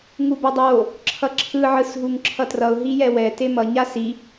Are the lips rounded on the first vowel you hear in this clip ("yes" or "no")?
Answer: yes